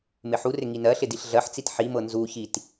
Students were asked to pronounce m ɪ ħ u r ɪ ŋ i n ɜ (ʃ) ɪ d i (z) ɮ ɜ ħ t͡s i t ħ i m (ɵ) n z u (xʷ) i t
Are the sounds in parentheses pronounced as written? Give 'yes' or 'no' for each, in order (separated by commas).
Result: no, no, no, no